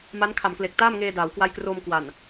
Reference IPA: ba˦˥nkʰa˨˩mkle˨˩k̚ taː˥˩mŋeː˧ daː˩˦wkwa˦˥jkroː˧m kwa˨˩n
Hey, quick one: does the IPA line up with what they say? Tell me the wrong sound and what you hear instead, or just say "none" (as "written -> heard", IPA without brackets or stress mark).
b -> m